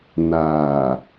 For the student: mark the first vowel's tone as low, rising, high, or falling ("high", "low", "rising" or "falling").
low